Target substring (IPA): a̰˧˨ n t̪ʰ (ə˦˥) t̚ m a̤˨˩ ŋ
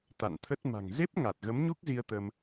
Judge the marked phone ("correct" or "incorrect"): correct